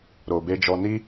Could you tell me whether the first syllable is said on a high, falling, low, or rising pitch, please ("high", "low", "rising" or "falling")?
low